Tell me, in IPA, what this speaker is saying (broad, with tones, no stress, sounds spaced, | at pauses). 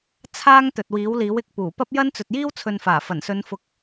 t͡sʰ aː˥ ŋ t̪ ɵ˨ t̚ w iː˨˥ w l iː˨˥ w ɪ˨˥ k̚ p uː˨˩ p ɐ˥ p̚ j ɐ˥ n t͡s ɵ˨ t̚ j iː˥ w t͡sʰ ɵ˨ n f aː˨˩ f ɐ˨˩ n s ɵ˨˧ n f ʊ˨ k̚